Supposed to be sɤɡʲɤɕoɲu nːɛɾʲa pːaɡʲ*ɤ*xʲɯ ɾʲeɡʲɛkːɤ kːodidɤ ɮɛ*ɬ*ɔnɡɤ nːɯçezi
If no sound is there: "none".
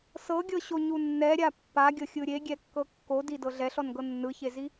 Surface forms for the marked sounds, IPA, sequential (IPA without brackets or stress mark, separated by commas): ɤ, ɬ